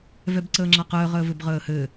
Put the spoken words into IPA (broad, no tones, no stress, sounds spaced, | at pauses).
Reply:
v ɛ b ǀ əː ŋ͡ǁ a q əː ʁ əː v ɘ b ʁ əː h ɘː